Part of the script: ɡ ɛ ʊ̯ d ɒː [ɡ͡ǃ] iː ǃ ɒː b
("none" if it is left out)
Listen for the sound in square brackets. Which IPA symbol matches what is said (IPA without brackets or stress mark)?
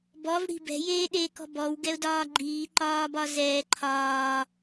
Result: ɡ͡ǃ